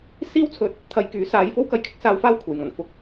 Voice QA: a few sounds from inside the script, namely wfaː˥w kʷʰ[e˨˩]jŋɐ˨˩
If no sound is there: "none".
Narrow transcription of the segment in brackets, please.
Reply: e˨˩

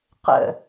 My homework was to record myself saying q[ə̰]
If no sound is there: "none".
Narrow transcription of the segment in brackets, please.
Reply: ə̰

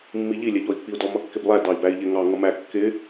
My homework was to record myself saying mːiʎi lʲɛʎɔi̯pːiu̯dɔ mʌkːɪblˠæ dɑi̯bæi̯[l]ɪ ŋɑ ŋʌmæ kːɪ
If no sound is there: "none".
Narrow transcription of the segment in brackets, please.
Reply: ʎ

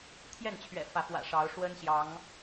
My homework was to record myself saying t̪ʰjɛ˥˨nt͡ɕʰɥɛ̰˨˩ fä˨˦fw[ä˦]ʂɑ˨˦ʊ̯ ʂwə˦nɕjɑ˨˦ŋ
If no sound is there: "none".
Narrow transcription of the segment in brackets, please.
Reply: ä̰˨˩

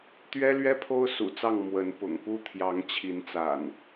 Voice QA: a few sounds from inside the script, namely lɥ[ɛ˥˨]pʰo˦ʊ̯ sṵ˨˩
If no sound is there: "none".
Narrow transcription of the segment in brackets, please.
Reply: ɛ˦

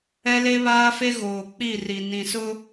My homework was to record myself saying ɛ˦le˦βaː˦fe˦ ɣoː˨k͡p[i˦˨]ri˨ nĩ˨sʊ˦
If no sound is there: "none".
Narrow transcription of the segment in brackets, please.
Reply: i˦˨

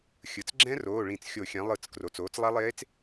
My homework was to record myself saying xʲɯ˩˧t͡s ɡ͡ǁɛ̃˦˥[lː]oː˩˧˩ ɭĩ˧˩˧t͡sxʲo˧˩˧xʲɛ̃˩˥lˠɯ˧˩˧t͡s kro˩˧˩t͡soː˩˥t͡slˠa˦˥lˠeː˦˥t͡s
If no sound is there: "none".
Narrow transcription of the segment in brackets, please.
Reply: r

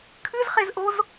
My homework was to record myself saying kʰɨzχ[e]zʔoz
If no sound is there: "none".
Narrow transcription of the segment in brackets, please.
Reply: e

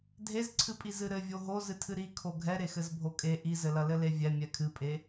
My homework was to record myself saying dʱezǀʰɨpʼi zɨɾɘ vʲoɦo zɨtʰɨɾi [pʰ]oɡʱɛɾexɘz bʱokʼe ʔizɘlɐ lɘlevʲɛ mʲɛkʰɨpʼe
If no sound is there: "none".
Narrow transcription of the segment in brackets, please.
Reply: kʰ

